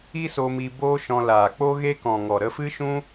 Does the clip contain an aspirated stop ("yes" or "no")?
no